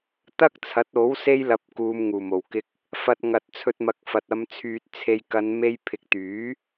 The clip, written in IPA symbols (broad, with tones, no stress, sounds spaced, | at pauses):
t̪ ɐ˥ k̚ t͡sʰ ɐ˨˥ t̚ o˨˥ w s e˥ j l ɐ˧ p̚ k uː˨˧ m ŋ uː˨˩ m o˨˩ w k ɪ˧ k̚ | f ɐ˧ t̚ ŋ ɐ˨ t̚ t͡sʰ ɵ˧ t̚ m ɐ˧ k̚ f ɐ˨ t̚ ɐ˧ m t͡sʰ yː˨ t̚ t͡sʰ e˧ j k ɐ˨˧ n m e˧ j pʰ ɪ˨ k̚ t̪ yː˨˥